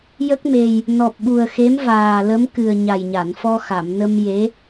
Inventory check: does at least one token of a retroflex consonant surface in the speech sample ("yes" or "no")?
no